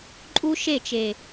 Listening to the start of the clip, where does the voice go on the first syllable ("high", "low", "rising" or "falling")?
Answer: high